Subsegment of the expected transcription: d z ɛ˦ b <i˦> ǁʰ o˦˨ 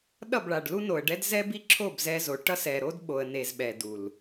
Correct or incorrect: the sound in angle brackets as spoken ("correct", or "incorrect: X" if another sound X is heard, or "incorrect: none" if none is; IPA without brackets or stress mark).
correct